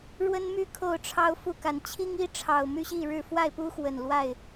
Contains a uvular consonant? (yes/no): no